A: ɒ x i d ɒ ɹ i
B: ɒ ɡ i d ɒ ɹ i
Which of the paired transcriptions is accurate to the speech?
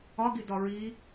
B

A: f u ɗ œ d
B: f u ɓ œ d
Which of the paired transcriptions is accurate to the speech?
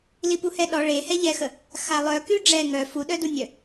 A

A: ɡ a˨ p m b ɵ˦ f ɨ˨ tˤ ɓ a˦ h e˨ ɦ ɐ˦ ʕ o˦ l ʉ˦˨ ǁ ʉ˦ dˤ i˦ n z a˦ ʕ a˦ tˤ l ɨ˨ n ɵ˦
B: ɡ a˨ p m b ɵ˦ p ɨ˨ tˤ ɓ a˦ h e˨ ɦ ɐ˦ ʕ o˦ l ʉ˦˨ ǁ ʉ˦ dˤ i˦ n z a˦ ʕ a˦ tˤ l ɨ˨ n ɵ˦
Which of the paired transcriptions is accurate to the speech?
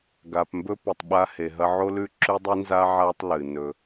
B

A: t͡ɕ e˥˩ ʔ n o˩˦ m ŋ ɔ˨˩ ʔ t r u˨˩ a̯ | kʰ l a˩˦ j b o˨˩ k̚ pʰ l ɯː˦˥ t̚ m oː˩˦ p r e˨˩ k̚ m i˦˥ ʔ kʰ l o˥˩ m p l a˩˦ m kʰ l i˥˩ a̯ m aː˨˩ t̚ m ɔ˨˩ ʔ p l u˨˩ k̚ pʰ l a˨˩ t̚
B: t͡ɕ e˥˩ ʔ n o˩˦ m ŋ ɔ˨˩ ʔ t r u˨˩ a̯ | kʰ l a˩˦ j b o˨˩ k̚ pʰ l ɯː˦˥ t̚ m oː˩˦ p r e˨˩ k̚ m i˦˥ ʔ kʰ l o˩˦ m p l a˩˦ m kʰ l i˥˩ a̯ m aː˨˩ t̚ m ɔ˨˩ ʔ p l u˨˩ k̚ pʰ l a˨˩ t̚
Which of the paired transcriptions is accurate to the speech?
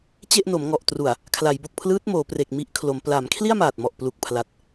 B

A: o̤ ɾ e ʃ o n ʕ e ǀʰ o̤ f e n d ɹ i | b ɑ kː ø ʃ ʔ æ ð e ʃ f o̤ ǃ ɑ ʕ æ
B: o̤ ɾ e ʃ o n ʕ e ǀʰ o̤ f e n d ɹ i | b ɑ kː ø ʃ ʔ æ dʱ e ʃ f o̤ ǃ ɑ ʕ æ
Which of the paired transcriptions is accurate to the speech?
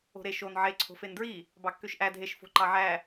B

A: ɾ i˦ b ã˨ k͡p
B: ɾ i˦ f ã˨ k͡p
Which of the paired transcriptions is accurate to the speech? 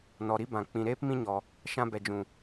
A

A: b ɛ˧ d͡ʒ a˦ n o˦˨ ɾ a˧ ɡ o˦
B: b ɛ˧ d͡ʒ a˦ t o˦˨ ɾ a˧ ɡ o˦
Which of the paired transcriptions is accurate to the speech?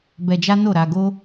A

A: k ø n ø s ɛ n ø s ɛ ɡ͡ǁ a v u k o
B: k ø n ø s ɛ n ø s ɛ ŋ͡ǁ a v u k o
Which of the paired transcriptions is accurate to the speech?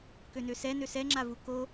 B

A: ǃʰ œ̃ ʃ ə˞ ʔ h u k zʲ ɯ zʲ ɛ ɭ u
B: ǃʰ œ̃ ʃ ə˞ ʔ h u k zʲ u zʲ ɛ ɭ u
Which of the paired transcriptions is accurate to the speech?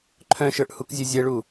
A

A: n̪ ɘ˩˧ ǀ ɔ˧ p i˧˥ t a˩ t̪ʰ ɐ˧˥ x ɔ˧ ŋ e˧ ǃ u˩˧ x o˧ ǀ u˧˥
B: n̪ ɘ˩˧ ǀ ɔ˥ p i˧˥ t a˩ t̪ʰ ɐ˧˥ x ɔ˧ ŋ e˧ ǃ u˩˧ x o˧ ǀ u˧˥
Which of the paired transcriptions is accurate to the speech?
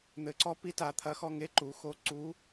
A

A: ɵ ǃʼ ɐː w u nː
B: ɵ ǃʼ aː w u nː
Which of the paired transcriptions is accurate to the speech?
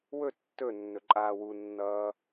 B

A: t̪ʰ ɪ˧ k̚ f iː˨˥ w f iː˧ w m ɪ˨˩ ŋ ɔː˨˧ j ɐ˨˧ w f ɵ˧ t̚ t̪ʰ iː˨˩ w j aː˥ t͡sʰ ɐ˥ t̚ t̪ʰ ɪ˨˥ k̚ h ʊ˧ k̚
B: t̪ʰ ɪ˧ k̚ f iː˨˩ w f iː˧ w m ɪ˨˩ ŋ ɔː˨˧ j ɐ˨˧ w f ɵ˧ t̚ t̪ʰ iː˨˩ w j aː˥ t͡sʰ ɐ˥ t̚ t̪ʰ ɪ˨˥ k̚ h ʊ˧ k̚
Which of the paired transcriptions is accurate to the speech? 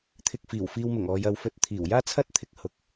B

